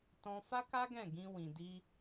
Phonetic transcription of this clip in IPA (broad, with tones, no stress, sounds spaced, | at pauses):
t ɔ̃˧ f a˦ k a˦ ɡ ɛ̃˦˨ ɡ ĩ˧ w ĩ˨ d i˧